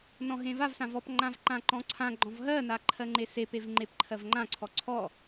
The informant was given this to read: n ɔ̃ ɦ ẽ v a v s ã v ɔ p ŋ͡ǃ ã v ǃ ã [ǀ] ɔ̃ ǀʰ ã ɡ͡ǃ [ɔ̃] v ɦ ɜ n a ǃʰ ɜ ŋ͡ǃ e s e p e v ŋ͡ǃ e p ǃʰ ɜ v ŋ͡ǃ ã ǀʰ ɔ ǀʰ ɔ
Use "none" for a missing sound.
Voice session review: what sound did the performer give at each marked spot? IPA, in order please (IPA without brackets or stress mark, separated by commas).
ǃ, ɔ̃